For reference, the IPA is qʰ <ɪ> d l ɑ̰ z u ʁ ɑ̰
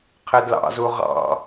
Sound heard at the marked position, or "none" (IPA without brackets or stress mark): ɪ